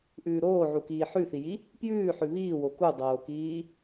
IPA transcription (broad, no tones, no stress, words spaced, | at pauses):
ʔʉːɾoːʕukiː ħʉθiji | pjʉːħʉ βiːwo kudˤoːkiː